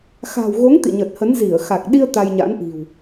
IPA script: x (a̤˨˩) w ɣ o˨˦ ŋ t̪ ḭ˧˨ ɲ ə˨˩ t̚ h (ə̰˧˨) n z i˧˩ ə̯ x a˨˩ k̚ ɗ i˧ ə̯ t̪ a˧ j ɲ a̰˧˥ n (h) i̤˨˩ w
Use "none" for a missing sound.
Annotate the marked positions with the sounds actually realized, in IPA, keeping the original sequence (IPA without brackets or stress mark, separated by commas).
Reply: a̤˨˩, ə˨˦, ʔ